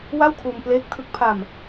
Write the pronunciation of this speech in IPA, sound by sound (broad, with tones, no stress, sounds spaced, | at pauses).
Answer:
w a˥˩ w kʰ uː˧ m p l eː˦˥ k̚ tʰ ɯ˦˥ k̚ pʰ a˧ m